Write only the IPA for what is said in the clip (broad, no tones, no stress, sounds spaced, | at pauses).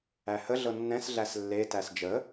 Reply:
æ h ə ɮ ɤ nː ɛ̃ s ɮ æ s lː e t æ s d͡ʒ ə